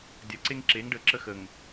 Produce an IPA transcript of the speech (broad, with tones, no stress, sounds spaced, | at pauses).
dʲ ɐ˨ ǀ e˦ ŋ ǁ e˨˦ ŋ ɖ ə˨˦ ǁ ə˦ x ə˨ ŋ